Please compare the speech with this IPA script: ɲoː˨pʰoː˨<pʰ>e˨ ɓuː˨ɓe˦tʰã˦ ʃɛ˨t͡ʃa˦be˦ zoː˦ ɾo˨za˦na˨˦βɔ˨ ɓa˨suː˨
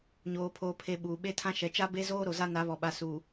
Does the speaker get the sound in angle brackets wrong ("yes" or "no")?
no